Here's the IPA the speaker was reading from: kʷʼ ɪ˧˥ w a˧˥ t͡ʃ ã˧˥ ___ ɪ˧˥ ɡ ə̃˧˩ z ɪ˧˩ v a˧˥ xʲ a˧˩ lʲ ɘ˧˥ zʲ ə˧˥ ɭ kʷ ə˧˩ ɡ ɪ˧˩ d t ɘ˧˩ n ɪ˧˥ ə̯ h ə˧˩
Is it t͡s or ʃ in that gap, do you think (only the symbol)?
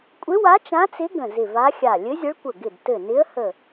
t͡s